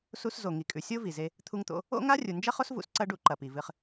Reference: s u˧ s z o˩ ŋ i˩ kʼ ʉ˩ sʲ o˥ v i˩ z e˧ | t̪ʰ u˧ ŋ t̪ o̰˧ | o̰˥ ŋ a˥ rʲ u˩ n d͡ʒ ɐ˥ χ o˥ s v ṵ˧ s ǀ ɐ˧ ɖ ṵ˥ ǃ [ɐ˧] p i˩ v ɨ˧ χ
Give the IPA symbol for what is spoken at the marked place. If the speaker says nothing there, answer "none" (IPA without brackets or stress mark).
ɐ˩